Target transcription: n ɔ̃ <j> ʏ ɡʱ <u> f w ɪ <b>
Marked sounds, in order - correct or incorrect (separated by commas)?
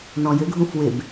correct, incorrect, correct